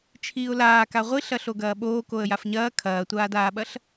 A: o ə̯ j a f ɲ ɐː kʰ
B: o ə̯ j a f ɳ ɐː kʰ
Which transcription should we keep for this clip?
A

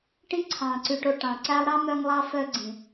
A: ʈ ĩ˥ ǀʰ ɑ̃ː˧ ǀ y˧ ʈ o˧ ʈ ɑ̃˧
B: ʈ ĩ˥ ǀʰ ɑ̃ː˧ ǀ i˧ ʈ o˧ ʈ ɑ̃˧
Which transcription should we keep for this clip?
A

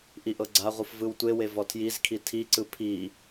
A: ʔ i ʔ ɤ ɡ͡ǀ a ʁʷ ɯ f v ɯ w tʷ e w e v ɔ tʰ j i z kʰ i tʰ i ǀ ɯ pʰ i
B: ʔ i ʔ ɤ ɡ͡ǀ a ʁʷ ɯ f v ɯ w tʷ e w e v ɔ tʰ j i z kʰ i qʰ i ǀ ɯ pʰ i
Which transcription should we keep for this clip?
A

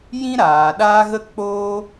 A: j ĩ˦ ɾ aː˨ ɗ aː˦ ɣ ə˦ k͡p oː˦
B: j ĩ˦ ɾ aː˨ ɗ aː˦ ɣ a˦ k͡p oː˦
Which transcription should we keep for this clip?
A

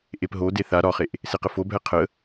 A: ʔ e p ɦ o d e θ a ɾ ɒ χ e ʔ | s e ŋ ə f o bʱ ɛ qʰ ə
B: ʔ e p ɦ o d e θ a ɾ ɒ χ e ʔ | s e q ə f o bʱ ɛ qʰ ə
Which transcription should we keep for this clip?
B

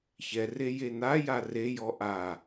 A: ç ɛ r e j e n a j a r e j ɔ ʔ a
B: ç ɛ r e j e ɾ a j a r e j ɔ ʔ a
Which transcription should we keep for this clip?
A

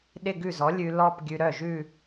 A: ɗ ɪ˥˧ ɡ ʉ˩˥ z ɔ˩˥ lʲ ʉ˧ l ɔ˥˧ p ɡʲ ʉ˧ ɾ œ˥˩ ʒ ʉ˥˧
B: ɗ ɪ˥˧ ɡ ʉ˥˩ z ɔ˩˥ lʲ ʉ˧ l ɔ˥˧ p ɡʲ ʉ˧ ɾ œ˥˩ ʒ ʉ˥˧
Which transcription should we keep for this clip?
B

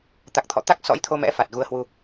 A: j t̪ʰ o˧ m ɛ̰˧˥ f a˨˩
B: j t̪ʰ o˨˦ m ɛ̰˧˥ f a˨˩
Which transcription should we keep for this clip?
A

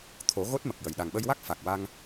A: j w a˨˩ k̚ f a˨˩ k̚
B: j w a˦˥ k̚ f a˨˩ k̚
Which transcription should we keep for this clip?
B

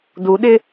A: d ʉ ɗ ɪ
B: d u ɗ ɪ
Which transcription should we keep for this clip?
B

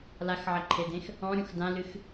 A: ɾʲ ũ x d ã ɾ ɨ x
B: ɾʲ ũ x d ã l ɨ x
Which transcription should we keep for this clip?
B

